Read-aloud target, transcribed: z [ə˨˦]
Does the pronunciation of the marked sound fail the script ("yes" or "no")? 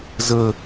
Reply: yes